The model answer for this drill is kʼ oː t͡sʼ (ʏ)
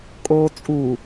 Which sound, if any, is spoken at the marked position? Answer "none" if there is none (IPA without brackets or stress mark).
u